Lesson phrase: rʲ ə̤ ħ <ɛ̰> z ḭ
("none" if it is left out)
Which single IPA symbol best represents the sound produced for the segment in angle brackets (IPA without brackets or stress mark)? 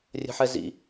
ɛ